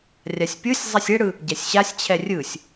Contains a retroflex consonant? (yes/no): yes